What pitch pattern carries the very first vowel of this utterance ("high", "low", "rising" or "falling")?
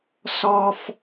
high